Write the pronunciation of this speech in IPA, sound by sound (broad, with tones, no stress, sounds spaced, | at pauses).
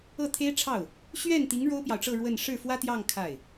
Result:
ɤ˥˩ t̪ʰ e˥ ɪ̯ ʈ͡ʂʰ ɑ˥˩ ʊ̯ | ɕ ɥ ɛ˥˩ n t̪ i˧˥ ŋ ɻ o˥ ʊ̯ p j ɑ˨ ʊ̯ ʈ͡ʂ ɤ˥˧ ɻ w ə˥˧ n ʂ ɻ̩˥˩ f w ä˥ t̪ j ɑ˥˧ ŋ kʰ a˥˩ ɪ̯